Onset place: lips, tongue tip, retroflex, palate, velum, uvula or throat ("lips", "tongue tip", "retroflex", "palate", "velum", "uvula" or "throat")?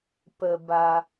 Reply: lips